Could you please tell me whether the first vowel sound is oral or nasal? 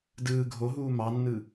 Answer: oral